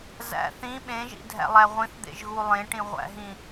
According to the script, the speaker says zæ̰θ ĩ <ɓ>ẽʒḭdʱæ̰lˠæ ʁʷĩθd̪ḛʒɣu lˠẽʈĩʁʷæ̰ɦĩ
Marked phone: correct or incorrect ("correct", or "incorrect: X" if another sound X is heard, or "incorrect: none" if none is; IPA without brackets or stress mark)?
correct